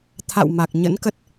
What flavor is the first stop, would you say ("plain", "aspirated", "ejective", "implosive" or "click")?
aspirated